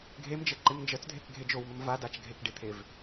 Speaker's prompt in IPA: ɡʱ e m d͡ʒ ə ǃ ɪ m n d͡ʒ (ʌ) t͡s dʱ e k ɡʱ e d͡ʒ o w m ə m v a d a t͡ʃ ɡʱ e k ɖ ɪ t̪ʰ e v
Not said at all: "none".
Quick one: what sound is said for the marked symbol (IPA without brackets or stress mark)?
ə